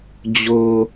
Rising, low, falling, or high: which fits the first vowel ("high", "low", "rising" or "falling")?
low